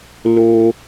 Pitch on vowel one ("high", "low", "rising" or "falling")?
high